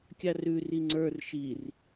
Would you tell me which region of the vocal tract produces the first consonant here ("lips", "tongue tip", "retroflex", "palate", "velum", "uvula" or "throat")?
velum